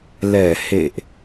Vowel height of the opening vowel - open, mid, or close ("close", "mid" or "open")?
mid